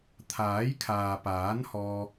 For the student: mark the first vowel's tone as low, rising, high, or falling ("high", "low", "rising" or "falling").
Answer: rising